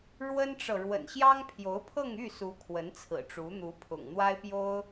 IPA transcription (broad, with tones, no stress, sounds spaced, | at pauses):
ɻ w ə˥ n ʈ͡ʂ ɤ˨ ɻ w ə̰˨˩ n ɕ j ɑ˥ ŋ pʰ j o˧˥ ʊ̯ pʰ ɤ˥˧ ŋ y˥˩ s u˧˥ kʰ w ə˧˥ n t͡sʰ ɹ̩˨˩ ʈ͡ʂ u˧˥ n̪ u˧˥ pʰ ʊ̰˨˩ ŋ n̪ w a˥ ɪ̯ p j o˥ ʊ̯